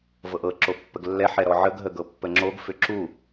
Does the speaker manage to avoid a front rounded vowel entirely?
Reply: no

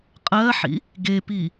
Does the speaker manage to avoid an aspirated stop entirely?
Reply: yes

